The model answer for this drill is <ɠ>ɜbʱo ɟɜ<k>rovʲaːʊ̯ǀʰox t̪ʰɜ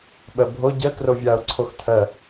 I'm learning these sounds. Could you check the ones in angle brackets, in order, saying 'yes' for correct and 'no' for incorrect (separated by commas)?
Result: no, yes